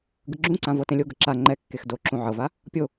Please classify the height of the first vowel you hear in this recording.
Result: high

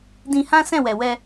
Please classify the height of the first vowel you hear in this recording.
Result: high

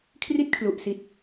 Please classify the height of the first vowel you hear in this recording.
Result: high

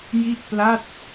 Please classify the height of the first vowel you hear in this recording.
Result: high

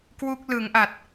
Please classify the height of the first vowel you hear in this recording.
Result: high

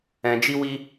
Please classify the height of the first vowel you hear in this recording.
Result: mid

